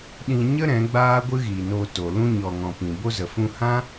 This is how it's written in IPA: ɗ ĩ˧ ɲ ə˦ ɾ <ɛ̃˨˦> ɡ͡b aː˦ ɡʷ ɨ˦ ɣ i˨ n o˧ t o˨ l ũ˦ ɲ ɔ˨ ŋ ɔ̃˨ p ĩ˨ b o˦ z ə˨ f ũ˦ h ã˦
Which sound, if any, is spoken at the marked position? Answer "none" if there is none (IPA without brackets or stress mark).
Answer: ɛ̃˨˦